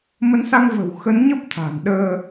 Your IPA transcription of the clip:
m ə˨˦ n s a˧ ŋ v ə̤˨˩ w x ə˨˦ n ɲ ə˦˥ p̚ t̪ʰ a̤˨˩ n ɗ əː˧

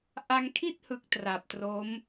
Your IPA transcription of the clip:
ʔ a˧ ŋ kʰ i˥˩ t̚ h ɯ˨˩ k̚ t r a˨˩ p̚ t r o˦˥ m

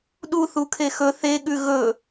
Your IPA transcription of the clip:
ɗ u θ u kʰ e x ɵ θ e ɠ ʉ ɣ ɵ

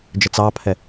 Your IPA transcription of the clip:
d͡ʒ ə t͡s ɑ pʰ ɛ

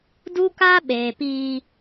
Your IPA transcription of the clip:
d u˦ k a˦ ɓ eː˨ p iː˦

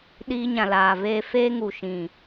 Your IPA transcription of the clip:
ɗ iː˧ ɲ ã˨ l aː˨ v eː˧ f eː˧ ŋ u˨ ʃ ĩ˨

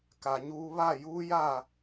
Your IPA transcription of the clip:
k a˨ ɲ uː˦ β a˦˨ j uː˦ j a˦˨

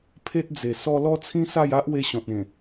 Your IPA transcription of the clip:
pʰ e˦ t̚ d͡z e˨˩ s ɔ˦ l ɔ˦ t͡sʰ ĩ˦ s a˥˧ j a˦ ʔ w e˦ ɕ ɔ̃˨ t̚ ẽ˨˩

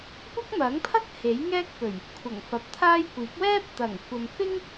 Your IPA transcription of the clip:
kʷ ɐ˥ k̚ m ɐ˨˥ ŋ pʰ ɐ˥ k̚ h e˨˥ j ŋ ɛː˥ k̚ p ɵ˨˩ ɥ | kʷʰ ɐ˨˩ ŋ f ɐ˨ p̚ t̪ʰ aː˥ j kʷ iː˨˥ k̚ w ɛː˥ p̚ t̪ ɐ˨˩ ŋ kʷ ɐ˨ m f ɪ˥ ŋ

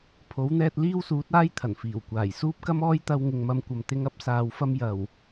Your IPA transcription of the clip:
pʰ o˨˥ w n̪ ɛː˧ t̚ l iː˥ w s uː˨˥ t̚ aː˥ j t̪ʰ ɐ˨˩ n f iː˨˩ w kʷ aː˨˩ j s uː˥ p̚ k ɐ˥ m ɔː˥ j t̪ ɐ˧ w ŋ ɪ˨ ŋ m ɐ˧ m kʷ ɐ˨ m t̪ ɪ˧ ŋ ɐ˥ p̚ s aː˨ w f ɐ˥ m j ɐ˨˩ w

